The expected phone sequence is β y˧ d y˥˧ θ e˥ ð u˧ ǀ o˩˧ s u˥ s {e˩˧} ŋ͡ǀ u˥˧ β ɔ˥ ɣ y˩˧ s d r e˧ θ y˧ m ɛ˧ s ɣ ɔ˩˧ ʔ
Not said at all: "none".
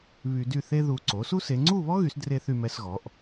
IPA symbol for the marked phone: e˩˧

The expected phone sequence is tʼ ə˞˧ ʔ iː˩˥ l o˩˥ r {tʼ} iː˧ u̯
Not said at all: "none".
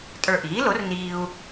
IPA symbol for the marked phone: n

